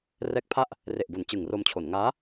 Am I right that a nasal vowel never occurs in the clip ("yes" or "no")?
yes